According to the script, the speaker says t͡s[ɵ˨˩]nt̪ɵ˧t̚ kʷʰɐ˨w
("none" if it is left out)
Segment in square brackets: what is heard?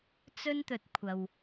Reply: ɵ˥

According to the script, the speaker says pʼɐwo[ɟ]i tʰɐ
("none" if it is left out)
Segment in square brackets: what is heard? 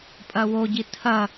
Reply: ɟ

